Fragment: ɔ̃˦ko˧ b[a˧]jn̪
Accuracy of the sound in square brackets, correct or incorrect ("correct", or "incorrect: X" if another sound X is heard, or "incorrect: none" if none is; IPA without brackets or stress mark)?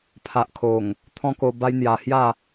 incorrect: a˦